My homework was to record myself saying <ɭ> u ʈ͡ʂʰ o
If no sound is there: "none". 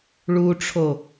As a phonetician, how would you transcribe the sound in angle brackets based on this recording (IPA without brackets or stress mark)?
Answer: ɭ